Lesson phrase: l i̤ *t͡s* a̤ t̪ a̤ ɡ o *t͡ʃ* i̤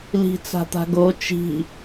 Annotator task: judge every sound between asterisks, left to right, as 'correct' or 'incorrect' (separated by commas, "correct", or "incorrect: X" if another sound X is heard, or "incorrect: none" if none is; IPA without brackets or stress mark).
correct, correct